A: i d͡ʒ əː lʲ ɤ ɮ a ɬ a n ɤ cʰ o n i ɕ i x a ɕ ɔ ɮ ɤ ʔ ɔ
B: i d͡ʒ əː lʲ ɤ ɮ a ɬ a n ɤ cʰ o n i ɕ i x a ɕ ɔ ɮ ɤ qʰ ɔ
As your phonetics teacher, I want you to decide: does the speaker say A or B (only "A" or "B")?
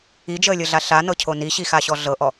A